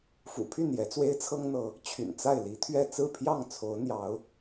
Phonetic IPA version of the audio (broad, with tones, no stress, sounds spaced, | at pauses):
f ṵ˨˩ pʰ y˥˨ n j ɛ˨˦ t͡s w e˦ ɪ̯ t͡sʰ ɤ˦ ŋ n̪ ɤ˨˦ | t͡ɕʰ y̰˨˩ n t͡s a˥˨ ɪ̯ l i˨˦ t̪ʰ ɥ ɛ˥˨ t͡s ɹ̩˥˨ pʰ j ɑ˥˨ ŋ t͡sʰ o˨˦ ʊ̯ n̪ j ɑ˨˦ ʊ̯